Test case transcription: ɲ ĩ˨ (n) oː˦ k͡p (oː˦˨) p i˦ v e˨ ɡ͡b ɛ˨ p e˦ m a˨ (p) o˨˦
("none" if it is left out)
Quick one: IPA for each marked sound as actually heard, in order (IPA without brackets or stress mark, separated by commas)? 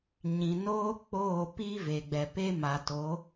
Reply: n, oː˦˨, t